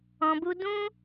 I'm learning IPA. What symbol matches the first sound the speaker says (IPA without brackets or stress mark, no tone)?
ɔ̃